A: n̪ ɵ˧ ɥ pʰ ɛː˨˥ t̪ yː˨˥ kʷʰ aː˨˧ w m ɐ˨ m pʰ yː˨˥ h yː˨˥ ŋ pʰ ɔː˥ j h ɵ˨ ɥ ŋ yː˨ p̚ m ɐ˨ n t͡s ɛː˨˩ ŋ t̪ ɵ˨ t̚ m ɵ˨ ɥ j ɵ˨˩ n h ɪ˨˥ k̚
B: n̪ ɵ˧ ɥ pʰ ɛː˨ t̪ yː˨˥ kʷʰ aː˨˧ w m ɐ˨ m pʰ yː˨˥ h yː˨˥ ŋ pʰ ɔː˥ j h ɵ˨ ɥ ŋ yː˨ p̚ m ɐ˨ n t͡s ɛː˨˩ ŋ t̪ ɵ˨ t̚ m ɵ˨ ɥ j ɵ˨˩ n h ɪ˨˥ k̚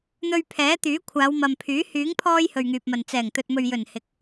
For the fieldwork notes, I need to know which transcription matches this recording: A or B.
A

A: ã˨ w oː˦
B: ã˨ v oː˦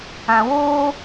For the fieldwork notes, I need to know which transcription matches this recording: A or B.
A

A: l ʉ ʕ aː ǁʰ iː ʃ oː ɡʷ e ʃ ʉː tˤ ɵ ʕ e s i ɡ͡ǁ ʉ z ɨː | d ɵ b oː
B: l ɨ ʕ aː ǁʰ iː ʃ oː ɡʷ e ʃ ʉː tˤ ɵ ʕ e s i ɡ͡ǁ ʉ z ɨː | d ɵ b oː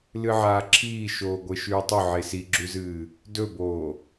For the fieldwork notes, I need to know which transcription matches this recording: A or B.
B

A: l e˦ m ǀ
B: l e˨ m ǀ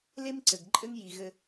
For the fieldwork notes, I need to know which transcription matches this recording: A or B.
A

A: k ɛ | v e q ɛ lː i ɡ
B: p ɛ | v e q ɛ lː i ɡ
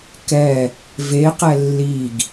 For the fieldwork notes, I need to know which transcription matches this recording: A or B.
A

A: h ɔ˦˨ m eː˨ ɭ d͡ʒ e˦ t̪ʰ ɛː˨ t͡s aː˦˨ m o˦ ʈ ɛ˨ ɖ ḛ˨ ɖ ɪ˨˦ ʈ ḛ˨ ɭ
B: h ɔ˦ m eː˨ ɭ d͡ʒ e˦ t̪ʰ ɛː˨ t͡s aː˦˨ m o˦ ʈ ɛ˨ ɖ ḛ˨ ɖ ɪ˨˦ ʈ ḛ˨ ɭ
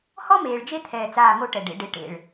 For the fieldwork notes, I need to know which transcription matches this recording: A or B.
B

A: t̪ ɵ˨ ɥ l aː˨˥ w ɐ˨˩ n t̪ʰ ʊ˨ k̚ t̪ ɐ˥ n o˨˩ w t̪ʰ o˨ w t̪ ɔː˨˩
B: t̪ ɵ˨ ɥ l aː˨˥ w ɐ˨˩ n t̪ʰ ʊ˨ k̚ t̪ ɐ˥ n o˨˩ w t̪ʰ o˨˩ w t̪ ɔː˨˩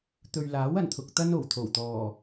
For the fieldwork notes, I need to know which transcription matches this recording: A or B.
B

